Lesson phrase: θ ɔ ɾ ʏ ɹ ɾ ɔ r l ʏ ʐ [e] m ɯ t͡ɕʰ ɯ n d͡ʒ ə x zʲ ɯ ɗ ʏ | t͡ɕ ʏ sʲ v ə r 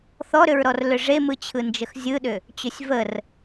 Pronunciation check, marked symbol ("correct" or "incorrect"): correct